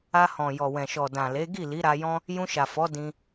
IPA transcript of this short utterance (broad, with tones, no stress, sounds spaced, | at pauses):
a˧ h ɔ̃˨ j ɔ˨ w ɛ̃˨ ʃ ɔ˨ d ã˨ l e˨˦ ɡ i˦˨ l i˨˦ ɾ a˧ j ɔ̃˦ | j ũ˧ ʃ a˨ f ɔ˨˦ d ĩ˦